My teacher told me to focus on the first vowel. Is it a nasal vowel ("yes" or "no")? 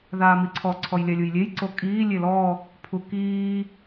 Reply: no